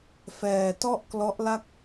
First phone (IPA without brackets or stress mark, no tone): f